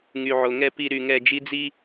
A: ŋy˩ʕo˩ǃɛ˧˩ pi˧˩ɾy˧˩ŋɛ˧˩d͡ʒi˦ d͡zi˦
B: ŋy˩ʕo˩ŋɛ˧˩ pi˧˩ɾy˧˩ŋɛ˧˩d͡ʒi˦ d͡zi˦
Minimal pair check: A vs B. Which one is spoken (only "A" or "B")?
B